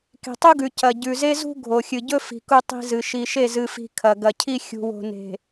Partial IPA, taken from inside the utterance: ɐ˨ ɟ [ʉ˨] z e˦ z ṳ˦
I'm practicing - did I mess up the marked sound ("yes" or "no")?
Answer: no